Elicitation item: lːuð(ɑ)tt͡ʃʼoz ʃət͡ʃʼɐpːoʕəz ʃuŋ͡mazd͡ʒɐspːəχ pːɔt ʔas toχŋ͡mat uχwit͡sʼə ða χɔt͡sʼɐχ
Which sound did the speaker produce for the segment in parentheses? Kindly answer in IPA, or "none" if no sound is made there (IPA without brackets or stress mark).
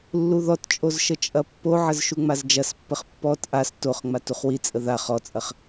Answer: ɔ